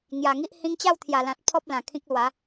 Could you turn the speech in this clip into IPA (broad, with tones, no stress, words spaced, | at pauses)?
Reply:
ŋja˨˩ŋi˦ʔ hĩ˧ŋt͡ɕa˥˧wt̪ʰja˨˩lã˨t̚ pʰɔ˦p̚lã˨˩ kʰĩ˦k̚lwa˨˦